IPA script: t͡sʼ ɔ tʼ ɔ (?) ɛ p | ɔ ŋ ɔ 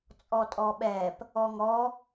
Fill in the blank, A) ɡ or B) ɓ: B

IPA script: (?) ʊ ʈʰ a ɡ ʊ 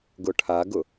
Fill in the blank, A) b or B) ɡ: B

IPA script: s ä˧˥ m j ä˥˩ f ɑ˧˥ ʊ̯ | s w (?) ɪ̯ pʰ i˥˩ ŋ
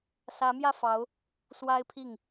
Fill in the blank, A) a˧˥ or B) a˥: B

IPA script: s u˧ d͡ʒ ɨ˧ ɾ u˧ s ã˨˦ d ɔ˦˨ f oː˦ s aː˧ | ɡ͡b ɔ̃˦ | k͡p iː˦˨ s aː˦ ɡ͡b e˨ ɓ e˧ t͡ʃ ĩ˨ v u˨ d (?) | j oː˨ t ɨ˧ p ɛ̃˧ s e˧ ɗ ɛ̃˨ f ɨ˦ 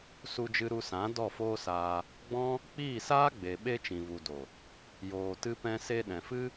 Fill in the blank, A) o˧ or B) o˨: B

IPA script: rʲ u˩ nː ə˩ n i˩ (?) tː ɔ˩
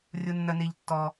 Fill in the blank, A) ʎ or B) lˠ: A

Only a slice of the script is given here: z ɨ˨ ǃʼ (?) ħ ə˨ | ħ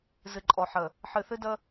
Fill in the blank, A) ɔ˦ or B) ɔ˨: B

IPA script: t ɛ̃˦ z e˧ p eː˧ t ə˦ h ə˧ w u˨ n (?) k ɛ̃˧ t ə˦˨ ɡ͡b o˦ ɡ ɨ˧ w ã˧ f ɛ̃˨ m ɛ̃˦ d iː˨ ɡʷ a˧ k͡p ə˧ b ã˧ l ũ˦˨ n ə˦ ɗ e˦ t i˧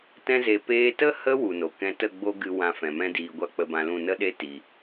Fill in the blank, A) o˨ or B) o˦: A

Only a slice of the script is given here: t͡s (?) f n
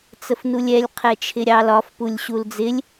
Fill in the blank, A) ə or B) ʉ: A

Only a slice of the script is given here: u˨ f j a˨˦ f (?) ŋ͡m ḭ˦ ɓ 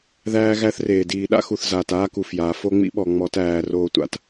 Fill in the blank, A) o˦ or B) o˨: A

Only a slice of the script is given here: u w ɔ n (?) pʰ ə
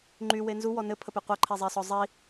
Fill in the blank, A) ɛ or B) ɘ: B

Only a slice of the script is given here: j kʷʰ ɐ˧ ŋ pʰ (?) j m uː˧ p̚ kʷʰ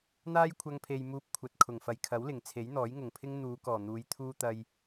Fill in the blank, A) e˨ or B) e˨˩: A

